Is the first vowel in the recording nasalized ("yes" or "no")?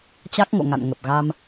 no